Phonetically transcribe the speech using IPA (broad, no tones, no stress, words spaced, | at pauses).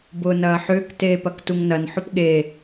bʊːnɐːħʏːk teːpɐktuŋnɐn ħʊpɠe